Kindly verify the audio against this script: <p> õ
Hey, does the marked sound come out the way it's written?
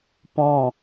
yes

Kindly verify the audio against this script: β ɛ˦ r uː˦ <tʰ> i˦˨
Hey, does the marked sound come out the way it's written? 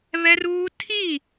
yes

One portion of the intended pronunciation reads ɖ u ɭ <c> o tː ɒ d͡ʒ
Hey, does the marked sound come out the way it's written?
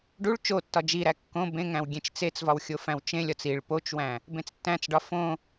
no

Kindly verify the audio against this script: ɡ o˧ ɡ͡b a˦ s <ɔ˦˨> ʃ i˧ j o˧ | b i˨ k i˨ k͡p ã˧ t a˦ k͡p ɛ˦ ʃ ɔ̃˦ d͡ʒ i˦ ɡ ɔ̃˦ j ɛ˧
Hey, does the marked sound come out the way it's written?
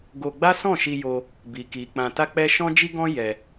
no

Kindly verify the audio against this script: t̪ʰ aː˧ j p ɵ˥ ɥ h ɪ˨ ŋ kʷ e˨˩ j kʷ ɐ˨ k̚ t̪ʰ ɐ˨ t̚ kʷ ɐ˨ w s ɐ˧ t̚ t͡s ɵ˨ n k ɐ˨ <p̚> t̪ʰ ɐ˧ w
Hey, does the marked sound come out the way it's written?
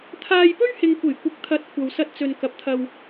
yes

